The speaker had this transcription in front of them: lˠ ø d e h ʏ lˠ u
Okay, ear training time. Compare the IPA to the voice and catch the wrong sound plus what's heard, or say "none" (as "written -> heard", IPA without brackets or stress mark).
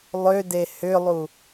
none